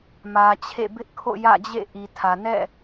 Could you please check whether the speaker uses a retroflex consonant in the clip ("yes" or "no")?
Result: no